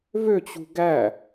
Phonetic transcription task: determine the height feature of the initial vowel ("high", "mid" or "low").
mid